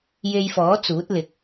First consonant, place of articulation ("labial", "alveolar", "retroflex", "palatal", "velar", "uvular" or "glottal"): palatal